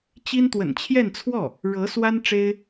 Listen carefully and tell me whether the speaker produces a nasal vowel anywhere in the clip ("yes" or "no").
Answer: no